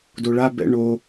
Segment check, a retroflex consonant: present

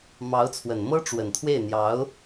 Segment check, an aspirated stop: present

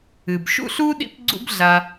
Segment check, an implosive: present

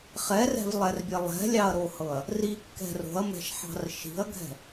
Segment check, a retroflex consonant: absent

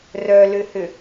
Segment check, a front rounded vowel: present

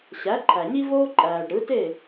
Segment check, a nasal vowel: absent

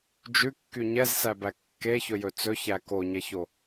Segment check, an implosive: absent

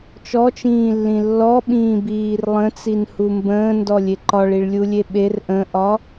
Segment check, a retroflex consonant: present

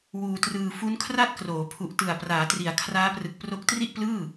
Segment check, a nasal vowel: absent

